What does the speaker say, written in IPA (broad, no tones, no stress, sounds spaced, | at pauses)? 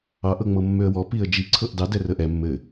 ɑ ʔ ɤ ŋ͡m ɤ mː ø ə̯ w ɔ p i ə̯ d͡ʒ i ǀʰ ɤ ʔ d ɑ d ɛ r ə ʔ ɛ mː ɘ